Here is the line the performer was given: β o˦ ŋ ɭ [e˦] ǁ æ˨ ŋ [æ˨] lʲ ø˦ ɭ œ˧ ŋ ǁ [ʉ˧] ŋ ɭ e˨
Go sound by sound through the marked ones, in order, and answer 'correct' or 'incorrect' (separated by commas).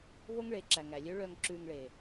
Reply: incorrect, correct, correct